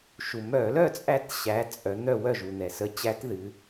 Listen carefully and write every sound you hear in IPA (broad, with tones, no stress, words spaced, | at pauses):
ʃu˩mœ˧˩˧lœ˥˨t͡sʼæ˧˥t ɕæ˩˥ t͡sʼœ˩˧n̪œ˥˨ wœ˥˨ʒu˩n̪ɛ˩sə˧˥ t͡ɕæ˧˥tðɨ˩˧